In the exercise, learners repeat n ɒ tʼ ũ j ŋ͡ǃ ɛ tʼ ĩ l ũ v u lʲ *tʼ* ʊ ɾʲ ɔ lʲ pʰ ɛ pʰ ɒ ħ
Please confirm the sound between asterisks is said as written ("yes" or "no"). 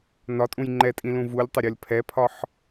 no